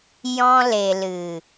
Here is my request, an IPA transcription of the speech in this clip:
jɔ̃˧le˨lɨ˨

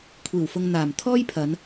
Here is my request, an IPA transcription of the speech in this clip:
kʷʰiː˨˩wfʊ˨ŋ n̪aː˨˩m t̪ʰɔː˥jpʰɐ˨˧n

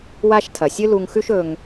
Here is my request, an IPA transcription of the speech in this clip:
wa˥ʃtʰɐ˩ sʲɨ˥lu˧ŋxʉ˥ʃ ɵ˧ŋ

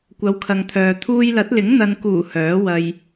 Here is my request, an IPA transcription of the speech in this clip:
kʷɐ˨˧wkʰɐ˨ŋt̪ʰœː˨ t̪ʰuː˧jlɐ˨˥t̚lɪ˨˥ŋ n̪ɐ˨nkuː˨˩ hœː˨˥wɐ˧j

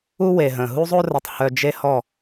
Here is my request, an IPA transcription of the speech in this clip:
u˦we˨ɦə̃˨ ɦu˦zˤo˦rə˨tˤhœ˨ d͡ʒe˦hɔ˦˨

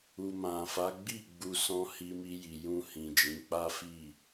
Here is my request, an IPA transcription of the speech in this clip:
u˨mã˨fa˨˦ ɡ͡bi˦˨ ɡ͡bu˧ sɔ̃˧ hi˧mi˧ji˨ jũ˧hĩ˨ d͡ʒĩ˨˦k͡pa˦fi˦˨

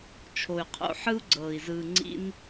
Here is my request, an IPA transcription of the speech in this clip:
t͡ʃʰo˧y̯qʰo̰˧ ħɯ˦u̯ɡ͡ǀɤː˨i̯ zɯː˧ŋ͡ǀḭ˦n

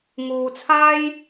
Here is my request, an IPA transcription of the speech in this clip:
ŋuː˧t͡sʰaː˥j

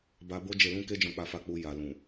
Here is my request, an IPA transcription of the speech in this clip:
ba˧bo˦ d͡ʒe˧lũ˦ ke˦d͡ʒɔ̃˧k͡pa˧fa˧ k͡pu˧ ja˨lũ˨

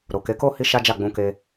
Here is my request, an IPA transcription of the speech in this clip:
ɾo˨ke˨˦ko˦ hi˦ʃa˦d͡ʒa˦˨ ɡ͡bũ˧ke˧

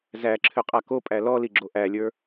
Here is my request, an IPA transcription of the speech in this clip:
zæǁʰʏ qʼakopʼæ lɔli ɡ͡ǁoʔælʲə˞

